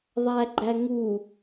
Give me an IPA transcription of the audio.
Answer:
ðˤ æ ɡ͡ǃ æ ŋ u

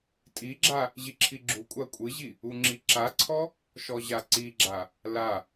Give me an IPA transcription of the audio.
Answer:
tʼ i ɡ͡ǁ a | ʑ i ǁʰ i ɡ͡ǁ u kʷʼ a kʷʼ ɨ ʑ i | u ŋ͡ǁ i ǁ a ǀʰ ɔ | ʃ ɔ ʑ a ǀ i ɡ͡ǁ a | l a

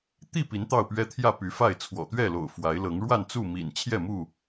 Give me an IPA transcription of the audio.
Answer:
t̪ i˥˨ p i˨˦ n t̪ ɑ˥˨ ʊ̯ p ɥ ɛ˦ t̪ʰ j ä˥˨ p y˨˦ f a˥˨ ɪ̯ t͡sʰ w ɔ̰˨˩ t̪ ɥ ɛ˥˨ l o̰˨˩ ʊ̯ f w a˨˦ ɪ̯ l ɤ˨˦ ŋ ɻ w a˥˨ n t͡s u˥˨ m ḭ˨˩ n t͡ɕʰ j ɛ˥˨ m u˥˨

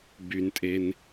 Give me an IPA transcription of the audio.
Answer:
b y n tʼ e n

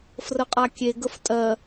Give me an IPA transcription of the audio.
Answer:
f r ə qʼ a kʲ e ɡ ə f tʼ ɜ

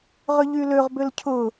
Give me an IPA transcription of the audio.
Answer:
ʁ ʏ ʎ y l ø ʁ b ʏ l cʰ ʊ

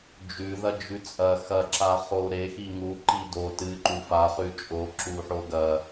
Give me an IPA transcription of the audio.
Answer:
d͡ʒ ʉ ð ɐ d͡ʒ ʉ t͡sʼ ɐ x ɐ ǁ a χ o ɾ e x i ŋ u ǃ i d o t ɨ ǃ u f a χ ʉ t͡ʃʼ o ǁ u ħ o ɡ ɐ

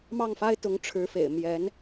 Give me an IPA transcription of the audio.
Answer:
m ɑ˥˩ ŋ f a˥ ɪ̯ t̪ ʊ˧˥ ŋ ʈ͡ʂʰ ɻ̩˧˥ f ḛ˨˩ ɪ̯ m j ɛ˧˥ n

